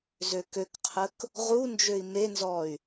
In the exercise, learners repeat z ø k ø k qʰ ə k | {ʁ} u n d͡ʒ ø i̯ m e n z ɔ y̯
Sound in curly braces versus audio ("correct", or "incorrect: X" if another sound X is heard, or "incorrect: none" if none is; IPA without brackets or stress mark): correct